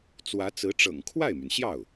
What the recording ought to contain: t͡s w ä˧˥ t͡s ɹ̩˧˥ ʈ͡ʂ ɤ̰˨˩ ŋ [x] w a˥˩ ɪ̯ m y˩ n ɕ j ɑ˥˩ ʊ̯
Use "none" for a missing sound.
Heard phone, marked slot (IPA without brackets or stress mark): kʰ